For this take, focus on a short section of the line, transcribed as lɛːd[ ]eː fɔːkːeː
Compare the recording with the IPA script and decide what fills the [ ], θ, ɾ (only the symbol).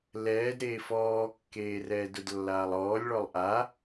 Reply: ɾ